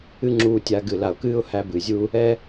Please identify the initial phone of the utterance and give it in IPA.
ɨ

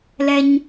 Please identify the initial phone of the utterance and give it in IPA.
l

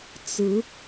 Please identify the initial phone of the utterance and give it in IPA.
t͡s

